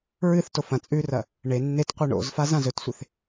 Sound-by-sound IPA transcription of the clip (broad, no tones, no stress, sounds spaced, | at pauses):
ɹ ɨ θ t o f ɐ̃ t͡sʼ ʉ r ɐ | ɳ e nː e t qʷ i ɳ o̰ z f a z ã z ɵ t sʷ e θ